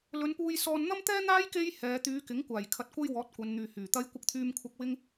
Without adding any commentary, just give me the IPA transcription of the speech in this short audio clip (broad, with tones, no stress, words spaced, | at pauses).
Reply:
lɵ˨˧npuː˧jsɔː˧n n̪ɐ˥mt̪ɛː˥n̪aː˥j ke˥jhɛː˨˧ t̪yː˨˧kɪ˨˥ŋkʷaː˨˩j kʰɐ˧t̚kʷɐ˥j wɔː˨˥t̚kʷɐ˨˧nn̪yː˨ hyː˨˩t̪ɐ˥j kʷɪ˧k̚t̪ʰyː˧mkʷʰɐ˧k̚ wɪ˥ŋ